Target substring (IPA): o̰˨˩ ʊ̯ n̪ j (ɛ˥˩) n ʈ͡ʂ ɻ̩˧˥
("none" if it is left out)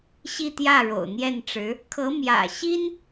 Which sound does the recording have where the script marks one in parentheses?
ɛ˥˩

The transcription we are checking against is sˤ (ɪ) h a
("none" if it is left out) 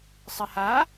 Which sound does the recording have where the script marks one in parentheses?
ɪ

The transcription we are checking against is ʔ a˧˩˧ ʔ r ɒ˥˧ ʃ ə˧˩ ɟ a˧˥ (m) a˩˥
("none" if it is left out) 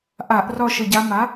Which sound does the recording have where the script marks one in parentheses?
m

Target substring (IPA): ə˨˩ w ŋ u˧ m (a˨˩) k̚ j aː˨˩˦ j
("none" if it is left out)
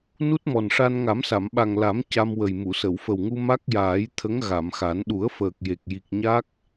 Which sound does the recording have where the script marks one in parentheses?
a˦˥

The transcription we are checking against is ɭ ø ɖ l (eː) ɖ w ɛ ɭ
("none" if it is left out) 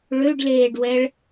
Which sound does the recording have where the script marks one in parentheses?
eː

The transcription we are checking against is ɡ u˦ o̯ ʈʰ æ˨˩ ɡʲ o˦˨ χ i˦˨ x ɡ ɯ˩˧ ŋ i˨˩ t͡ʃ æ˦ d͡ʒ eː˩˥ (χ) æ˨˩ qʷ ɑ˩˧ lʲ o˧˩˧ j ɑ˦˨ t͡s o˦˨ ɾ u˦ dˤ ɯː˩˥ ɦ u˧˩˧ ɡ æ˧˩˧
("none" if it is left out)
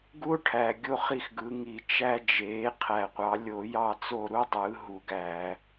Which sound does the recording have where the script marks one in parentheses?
qʰ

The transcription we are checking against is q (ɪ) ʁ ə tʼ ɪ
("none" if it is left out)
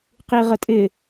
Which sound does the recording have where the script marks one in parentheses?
i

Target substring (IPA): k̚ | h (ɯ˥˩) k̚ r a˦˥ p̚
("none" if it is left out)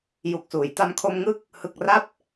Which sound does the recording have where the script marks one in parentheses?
ɯ˨˩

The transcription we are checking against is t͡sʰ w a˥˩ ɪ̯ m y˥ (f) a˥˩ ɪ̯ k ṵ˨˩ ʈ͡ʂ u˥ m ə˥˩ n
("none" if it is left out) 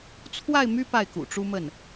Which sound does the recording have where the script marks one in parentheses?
p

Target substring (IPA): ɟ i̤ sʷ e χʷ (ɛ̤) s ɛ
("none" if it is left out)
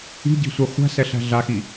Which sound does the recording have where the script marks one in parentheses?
æ̤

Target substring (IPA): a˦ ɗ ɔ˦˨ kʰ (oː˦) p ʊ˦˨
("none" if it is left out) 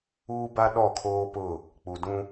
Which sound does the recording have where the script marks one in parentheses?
oː˦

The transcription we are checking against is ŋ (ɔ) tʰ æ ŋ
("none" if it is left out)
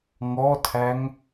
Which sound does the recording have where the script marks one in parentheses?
ɔ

